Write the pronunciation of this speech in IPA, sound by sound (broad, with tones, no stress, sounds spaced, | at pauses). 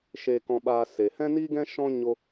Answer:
ʃ e˧ k ɔ̃˧ ɓ aː˧ s e˨ h ɛ̃˦ n iː˦ ɡ ɛ̃˦ ʃ ɔ̃˦ ɲ o˦